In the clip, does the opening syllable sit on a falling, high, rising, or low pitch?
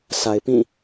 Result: low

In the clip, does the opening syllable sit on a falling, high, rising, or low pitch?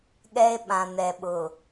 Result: high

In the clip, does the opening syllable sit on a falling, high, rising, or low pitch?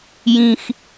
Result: high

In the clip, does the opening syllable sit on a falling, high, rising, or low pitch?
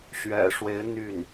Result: low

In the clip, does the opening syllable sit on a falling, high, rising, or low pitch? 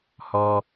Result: high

